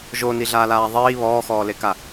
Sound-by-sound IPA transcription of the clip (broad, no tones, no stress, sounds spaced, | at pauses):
ʒ o n i ɮ aː l aː ðˤ iː β ɔː x ɔː l e k a